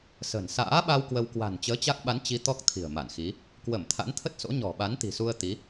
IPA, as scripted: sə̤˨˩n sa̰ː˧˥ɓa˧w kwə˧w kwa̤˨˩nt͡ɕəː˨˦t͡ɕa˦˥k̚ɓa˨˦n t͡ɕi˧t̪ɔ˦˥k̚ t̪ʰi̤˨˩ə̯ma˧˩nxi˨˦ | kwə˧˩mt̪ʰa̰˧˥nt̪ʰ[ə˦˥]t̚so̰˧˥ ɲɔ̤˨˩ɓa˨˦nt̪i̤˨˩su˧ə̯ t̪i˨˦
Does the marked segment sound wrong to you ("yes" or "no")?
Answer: no